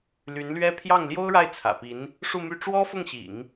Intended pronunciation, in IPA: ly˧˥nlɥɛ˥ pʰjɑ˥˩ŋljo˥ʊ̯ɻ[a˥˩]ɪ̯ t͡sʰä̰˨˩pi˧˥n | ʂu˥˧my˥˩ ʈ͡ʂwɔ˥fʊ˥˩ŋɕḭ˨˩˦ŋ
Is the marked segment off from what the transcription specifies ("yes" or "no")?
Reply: no